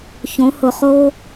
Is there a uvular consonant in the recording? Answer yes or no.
yes